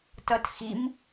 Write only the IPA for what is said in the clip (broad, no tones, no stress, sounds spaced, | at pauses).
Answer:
t ʌ t x i m